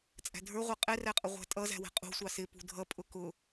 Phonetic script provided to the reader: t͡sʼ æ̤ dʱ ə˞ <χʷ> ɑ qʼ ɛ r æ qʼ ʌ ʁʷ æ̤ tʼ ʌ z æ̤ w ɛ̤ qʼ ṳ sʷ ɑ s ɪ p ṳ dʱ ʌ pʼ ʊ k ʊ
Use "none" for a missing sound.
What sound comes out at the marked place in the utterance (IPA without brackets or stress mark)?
ʁʷ